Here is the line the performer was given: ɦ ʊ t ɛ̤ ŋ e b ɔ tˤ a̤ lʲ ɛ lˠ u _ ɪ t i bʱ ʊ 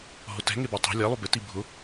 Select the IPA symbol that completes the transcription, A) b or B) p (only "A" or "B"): A